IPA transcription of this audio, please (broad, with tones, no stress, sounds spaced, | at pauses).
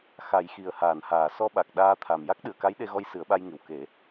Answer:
x a˨˩˦ j x i˨˩ ə̯ h aː˨˩˨ n h aː˨˩˨ s ɔ˧ ɓ a˨˩ k̚ ɗ aː˧ t̪ʰ a˨˩ m j a˦˥ k̚ ɗ ɨ˨˩˨ ə̯ k a˧˥ j ɗ e˧ ɣ ɔ˧ j s ɨ˨˩˦ ə̯ ɓ a˧ j ŋ ɨ˨˩ w k e˨˩˦